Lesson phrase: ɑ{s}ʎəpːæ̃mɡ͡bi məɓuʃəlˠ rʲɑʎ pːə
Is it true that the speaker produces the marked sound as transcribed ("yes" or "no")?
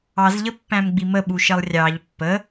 no